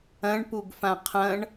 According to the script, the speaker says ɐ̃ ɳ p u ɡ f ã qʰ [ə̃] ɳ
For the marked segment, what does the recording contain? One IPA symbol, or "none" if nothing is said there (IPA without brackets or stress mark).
ɐ̃